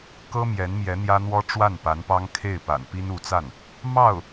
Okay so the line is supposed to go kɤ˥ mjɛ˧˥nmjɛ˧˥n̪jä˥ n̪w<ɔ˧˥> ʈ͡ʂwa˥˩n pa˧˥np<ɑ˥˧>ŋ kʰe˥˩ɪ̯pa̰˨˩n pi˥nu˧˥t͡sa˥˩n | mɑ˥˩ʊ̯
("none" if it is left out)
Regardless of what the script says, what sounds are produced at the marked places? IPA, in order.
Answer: ɔ˥, ɑ˥

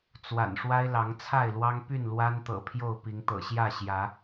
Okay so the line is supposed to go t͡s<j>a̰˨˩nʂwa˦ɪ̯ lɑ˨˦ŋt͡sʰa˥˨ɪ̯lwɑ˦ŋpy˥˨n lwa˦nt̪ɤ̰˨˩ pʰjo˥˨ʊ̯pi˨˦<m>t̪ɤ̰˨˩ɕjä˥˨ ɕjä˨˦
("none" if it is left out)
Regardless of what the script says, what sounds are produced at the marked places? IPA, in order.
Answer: w, ŋ

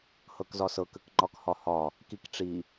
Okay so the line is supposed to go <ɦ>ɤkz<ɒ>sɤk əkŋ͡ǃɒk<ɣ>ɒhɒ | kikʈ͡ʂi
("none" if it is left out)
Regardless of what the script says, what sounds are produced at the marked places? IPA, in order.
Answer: h, ɒ, h

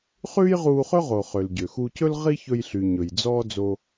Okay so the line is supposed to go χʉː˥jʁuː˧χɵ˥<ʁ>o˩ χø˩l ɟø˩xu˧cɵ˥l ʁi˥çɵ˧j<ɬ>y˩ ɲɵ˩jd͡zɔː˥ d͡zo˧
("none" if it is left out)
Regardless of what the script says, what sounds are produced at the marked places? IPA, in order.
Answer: ʁ, ɬ

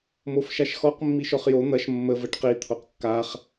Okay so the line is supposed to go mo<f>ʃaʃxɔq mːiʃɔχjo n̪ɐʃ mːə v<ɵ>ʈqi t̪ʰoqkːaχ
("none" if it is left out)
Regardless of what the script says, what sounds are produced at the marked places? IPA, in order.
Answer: f, ə

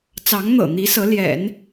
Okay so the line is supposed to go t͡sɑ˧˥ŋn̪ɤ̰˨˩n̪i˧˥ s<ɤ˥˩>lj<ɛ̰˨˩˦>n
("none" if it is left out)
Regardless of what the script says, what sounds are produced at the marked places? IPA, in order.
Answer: ɤ˧˥, ɛ̰˨˩˦

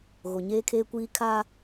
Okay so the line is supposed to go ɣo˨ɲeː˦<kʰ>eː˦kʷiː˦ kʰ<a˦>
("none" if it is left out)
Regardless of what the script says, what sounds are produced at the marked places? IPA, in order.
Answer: kʰ, a˦

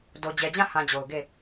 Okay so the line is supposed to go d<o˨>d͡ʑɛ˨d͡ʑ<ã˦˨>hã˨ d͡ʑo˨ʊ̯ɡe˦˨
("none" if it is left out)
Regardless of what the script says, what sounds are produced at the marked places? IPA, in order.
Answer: o˨, ã˦˨

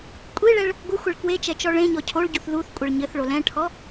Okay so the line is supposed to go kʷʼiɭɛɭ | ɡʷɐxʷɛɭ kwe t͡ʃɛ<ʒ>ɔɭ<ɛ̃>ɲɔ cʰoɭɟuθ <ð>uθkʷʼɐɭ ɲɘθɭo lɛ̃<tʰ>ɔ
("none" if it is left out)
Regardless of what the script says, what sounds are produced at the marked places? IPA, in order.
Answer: t͡ʃ, ẽ, ð, ʈʰ

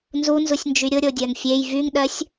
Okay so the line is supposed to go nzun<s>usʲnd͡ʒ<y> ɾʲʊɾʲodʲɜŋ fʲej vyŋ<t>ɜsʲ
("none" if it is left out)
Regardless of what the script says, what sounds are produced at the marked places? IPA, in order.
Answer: z, y, ɗ

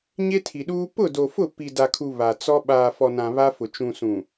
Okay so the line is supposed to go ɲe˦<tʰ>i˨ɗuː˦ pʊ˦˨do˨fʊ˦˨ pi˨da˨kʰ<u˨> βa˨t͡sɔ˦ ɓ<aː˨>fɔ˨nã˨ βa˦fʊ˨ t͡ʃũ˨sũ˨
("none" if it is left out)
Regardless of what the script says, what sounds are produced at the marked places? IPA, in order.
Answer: tʰ, u˨, aː˨

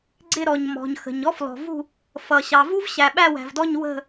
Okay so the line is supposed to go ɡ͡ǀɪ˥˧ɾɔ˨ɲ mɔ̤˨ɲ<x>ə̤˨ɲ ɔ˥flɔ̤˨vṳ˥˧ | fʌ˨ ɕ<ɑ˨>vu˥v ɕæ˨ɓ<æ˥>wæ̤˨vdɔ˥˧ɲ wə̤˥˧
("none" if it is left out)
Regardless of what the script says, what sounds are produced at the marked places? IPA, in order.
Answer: x, ɑ˨, æ˥˧

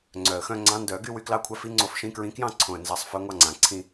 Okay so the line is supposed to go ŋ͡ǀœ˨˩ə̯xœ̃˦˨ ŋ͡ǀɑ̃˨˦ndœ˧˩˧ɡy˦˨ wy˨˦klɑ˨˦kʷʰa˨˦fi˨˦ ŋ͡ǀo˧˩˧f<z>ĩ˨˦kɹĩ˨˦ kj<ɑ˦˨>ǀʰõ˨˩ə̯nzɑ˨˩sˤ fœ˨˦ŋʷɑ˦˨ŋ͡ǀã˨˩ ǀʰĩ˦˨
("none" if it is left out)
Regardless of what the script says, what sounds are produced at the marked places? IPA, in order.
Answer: ʃ, ɑ̃˦˨

